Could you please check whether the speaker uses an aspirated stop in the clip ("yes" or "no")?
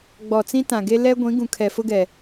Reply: yes